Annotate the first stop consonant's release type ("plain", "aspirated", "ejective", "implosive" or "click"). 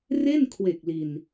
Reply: aspirated